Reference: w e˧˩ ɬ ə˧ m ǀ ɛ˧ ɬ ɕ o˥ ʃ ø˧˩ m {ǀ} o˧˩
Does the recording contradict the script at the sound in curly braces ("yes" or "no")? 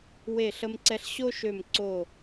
no